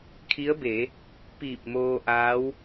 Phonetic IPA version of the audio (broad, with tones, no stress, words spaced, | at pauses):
kʰi˧˥ə̯be˩˧ | piː˧˩p̚moː˧ʔaː˧˥w